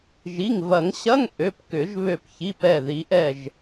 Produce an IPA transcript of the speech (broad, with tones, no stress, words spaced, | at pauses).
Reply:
ʒi˩˧˩ŋvɐ˨˩˦ŋɕɐ˧˥˧ŋ ʔø˩˧˩pkʏ˨˩˦ʒ βø˧˩p çi˩˧˩p ɛ˧˩ ði˨˩˦ʔɛ˧˩ʒ